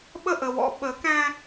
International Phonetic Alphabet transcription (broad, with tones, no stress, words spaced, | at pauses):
ɓə˦˨ʔə˨wɔ̰˦ ɓə˨˦kæ̃˦